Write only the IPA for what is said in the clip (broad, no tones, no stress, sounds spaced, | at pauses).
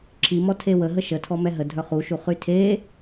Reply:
ǁʰ i m ɔ tʰ e w ə ɦ ə ʃ ə tʰ ɔ m ɛ ɦ ə dʱ œ χ u ʃ u χ y tʰ e